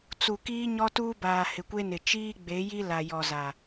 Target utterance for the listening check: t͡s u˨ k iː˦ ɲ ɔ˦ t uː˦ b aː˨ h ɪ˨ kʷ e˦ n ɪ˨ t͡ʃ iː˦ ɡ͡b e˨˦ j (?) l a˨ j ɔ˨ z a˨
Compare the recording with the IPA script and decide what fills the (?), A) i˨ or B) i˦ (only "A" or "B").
B